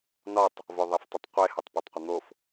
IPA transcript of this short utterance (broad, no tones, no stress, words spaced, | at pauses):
nɒtˤ | voðˤeftˤɪtˤqʷe hatˤpɒtˤqʷɪn̪of